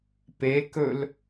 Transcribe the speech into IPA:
p e k ɵ l

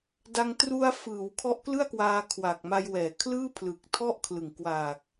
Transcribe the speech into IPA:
d a˧ ŋ t r u˧ a̯ f ɯː˩˦ w kʰ ɔ˦˥ ʔ k l ɯ˥˩ a̯ k w aː˧ kʰ w a˨˩ k̚ m a˧ j w ɛː˩˦ kʰ l ɯː˥˩ pʰ l ɯ˨˩ k̚ tʰ ɔ˥˩ ʔ kʰ l ɯ˨˩ ŋ k w aː˨˩ k̚

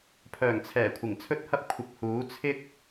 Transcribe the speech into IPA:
pʰ œː˨˩ ŋ t͡sʰ ɛː˨˩ kʷʰ ɪ˨˩ ŋ t͡sʰ ɵ˥ t̚ h ɐ˥ p̚ kʷʰ ɪ˧ k̚ h uː˨˥ t͡sʰ ɪ˥ k̚

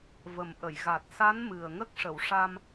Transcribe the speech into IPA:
v ə˨˩ m ʔ ə˨˩˨ j ɣ a˨˩ t̚ s a˧˥ n m ɨ˨˩ ə̯ ŋ ə˦˥ k̚ ʂ ə˨˩˨ w ʂ a˧ m

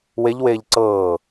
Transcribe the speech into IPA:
w e ʎ w eː ʎ ǀ ɤː

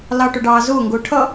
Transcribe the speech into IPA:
l ɑ ʈ ʊ ɖ ɑː z ʊː ŋ ɡ ʊː ʈʰ ʌ

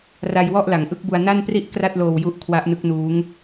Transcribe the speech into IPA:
r a˧ j w ɔ˥˩ ʔ l a˩˦ ŋ ʔ ɯ˦˥ k̚ b u˧ a̯ n a˥˩ n p r i˥˩ ʔ k r a˥˩ t̚ l oː˧ w j u˦˥ ʔ kʰ w a˦˥ ʔ n ɯ˦˥ k̚ n uː˦˥ ŋ

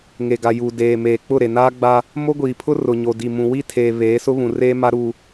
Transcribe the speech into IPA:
ŋ e˨ ɡ a˨ j uː˨ d eː˨ m eː˨ k͡p ʊ˦˨ ɾ e˨ n aː˦ ɡ͡b a˦ | m o˦ ɡʷ iː˨ pʰ ʊ˦ r ʊ˨ ɲ o˨ d i˨ m ũ˨ w i˦˨ tʰ eː˨ β eː˨˦ s ʊ˦ β ũ˨ r eː˦ m a˦ ɾ uː˦

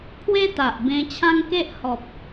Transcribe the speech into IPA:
pʰ w e˦ t̪ a˨ ʔ b ẽ˧ t͡ɕʰ ã˦ ŋ k e˦ ʔ h ɔ˨ p̚

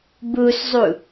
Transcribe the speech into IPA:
b u s zˤ u

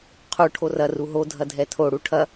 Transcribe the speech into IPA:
qʰ u ʈʰ o r ɐ r u ɦ o dʱ ɐ dʱ ɛ tʰ o ɽ u ʈʰ ɐ

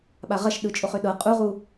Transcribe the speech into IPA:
ɓ a ʁ ɐ ʃ ɗ ɯ t͡ʃʼ o χ ø ɗ ɤ qʼ u ʁ u

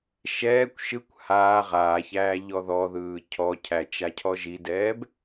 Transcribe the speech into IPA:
ʃ ɛː kʷ ʃ ɯ kʷ h aː ʁ aː ç æː ʎ ɔ ð ɔ ð ɯː cʰ ɔ cʰ æ t͡ʃ a cʰ ɔ ʒ i d ɛː b

